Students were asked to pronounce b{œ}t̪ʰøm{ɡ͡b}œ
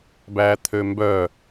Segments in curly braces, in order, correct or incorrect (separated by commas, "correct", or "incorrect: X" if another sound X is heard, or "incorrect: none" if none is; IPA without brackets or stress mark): incorrect: æ, incorrect: b